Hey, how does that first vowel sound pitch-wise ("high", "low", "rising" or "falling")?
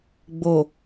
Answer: low